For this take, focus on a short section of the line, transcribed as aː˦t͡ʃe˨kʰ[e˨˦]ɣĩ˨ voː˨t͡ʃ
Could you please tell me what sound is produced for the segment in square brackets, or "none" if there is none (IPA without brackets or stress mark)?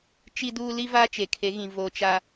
e˨˦